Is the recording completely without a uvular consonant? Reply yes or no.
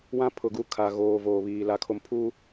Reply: yes